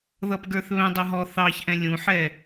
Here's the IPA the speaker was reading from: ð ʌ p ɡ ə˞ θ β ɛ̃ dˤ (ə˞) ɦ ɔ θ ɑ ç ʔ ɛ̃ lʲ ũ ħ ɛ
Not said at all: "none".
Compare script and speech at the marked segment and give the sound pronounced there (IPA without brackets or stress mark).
ʌ